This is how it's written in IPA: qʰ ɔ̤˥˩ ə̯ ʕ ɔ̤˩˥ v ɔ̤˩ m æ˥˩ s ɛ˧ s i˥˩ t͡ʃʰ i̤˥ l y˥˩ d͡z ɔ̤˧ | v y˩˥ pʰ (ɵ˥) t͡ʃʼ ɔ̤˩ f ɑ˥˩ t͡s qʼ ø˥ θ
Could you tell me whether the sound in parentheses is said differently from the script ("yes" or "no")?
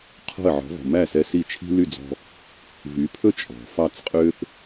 no